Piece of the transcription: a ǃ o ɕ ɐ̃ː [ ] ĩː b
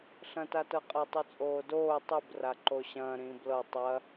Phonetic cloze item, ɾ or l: ɾ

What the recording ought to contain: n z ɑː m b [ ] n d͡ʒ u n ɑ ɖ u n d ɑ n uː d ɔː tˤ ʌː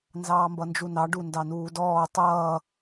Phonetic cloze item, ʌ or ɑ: ʌ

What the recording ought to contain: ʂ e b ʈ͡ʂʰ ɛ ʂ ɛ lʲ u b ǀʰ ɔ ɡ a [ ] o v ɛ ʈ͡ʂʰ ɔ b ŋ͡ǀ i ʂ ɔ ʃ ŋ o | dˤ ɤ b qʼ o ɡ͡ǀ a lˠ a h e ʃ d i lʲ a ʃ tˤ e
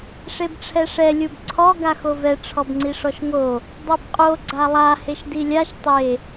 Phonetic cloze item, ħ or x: x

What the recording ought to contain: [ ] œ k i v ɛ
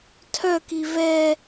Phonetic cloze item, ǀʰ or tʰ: tʰ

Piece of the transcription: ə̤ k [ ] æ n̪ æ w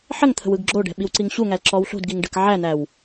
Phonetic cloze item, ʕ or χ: ʕ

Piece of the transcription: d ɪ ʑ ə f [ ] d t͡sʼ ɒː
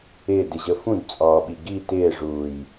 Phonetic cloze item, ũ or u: ũ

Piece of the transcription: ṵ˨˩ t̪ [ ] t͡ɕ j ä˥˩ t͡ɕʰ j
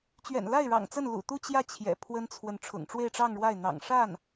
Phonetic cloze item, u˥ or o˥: u˥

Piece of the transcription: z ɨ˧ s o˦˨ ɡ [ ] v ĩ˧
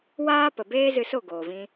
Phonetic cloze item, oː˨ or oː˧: oː˨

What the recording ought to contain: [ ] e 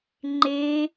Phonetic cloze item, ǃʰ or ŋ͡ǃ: ŋ͡ǃ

